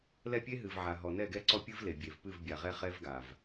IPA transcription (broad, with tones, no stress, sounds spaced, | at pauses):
l ɛ˦˨ pʲ e˦ ɦ ɨ˨ v ʕ a˨ ɦ ɔ˨ n ɛ˦˨ ɡ ɛ˦ ǀ ɔ˦ pʲ ɨ˦ v l e˨ bʲ e˨ v p ɨ˦˨ v bʲ a˨ ʁ ɛ˦ χ ɛ˦ v ɡ a˨ v